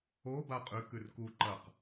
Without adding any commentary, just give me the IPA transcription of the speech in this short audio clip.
o b a qʼ ʉ k ʉ r k u ǃ ɐ q

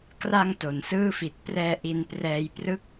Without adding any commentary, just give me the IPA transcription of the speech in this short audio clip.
k r a˧ ŋ t o˩˦ n s ɯː˥˩ f i˨˩ t̚ p r ɛː˧ ʔ i˧ n p r ɛː˧ j p r ɯ˦˥ k̚

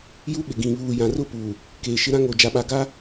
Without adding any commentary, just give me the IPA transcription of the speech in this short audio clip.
j u˦ ɓ ɪ˨ ɡ ĩ˨ β uː˨ j ã˨ r ʊ˦ p u˨ | k eː˨ ʃ ɪ˦ ɾ ã˦ ŋ o˨ d͡ʒ a˨ ɓ a˨ ɡ a˦

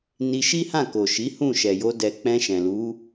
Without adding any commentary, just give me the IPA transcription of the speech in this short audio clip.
n i˧ ʃ i˦ h ã˦˨ k o˨ ʃ i˨˦ h ũ˦˨ ʃ ɛ˨ j o˧ d ɛ˨ k͡p ɛ̃˧ ʃ ɛ̃˨ l u˨˦

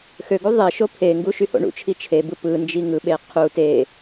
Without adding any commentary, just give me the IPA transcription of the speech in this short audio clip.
x ø ɡ u ðˤ e ʃ o pʰ e ŋ ɡ u ʃ y h o̰ ɳ ṵ t͡ʃʰ i t͡ʃʰ e b ɯ p ɯ n d͡ʒ i ŋ ɯ ɓ e qʰ u t e

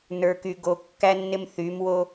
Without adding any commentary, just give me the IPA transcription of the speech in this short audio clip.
n ə˞˨ k y˨ ɡ o˨ kː æ˦ nː ɪ˦ m θ y˨˦ m w o˦

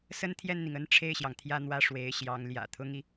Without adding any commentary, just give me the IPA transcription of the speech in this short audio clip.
s ə˥ n t̪ʰ j ɛ˥˩ n n̪ i˩ ŋ ə˥ n ʈ͡ʂʰ e˥˩ ɪ̯ ɕ j ɑ˩ ŋ t̪ʰ j ä˥˧ n̪ w ä˥˩ ʂ w e˧˥ ɪ̯ ɕ j ɑ˧˥ ŋ l j ä̰˨˩ t̪ʰ ʊ˥ ŋ i˨

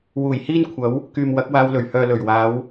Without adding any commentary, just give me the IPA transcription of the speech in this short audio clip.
w uː˨˩ j h iː˥ n kʷʰ ɐ˨˥ w | k yː˨ m w ɐ˨˥ k̚ w aː˧ w l ɵ˨˩ ɥ h œː˨ l ɵ˨˩ ɥ w aː˨˧ w

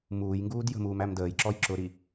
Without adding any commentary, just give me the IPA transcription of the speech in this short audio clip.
m uː j ŋ ɡ uː d j ə̤ m uː m æ m d əː j ǁ ɔ j ǁ ʊ ɾ i

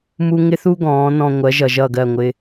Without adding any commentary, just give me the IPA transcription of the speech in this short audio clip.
m u˨ ŋ ɪ˦ θ u˦ ɡ ɔ̃ː˨˦ n ɔ̃˧ ŋʷ ɜ˨˦ ʒ ʌ˨ ʒ ʌ˦˨ ɡ ɜ˦˨ ŋʷ ɪ˦

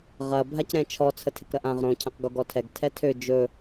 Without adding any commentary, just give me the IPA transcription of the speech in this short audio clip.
ʁ ɐ bʱ a c ɾ ɛ̃ t͡ʃʰ ɔ t͡sʰ ə tʰ ɪ k ɾ ɐ ʔ ã ʁ ɾ õ cʰ ɛ̃ q ɡ o ɡ ɔ tʰ ɛ ɡ tʰ ɛ tʰ ø d͡ʒ ɵ

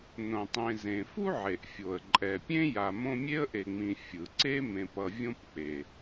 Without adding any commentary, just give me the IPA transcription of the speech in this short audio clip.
n õ˩ tˤ ẽ˨ z ẽ˩ f u˥ ʕ e˩ ʔ fʲ o˩ ə̯ ǃʼ ɛ˩ pʲ ẽ˥ j a˨ m õ˦ mʲ e˥ ə̯ ʔ e˨ ŋ͡m ĩ˨ fʲ ɯ˩ ǀ e˥ m ẽ˨ p ʌ˨ vʲ õ˥ p k͡p e˩

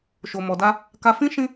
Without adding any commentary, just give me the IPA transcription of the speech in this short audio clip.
ʃ o˨ m ɔ˨ d a˧ | k a˧ f ĩ˦ ʃ ĩ˦

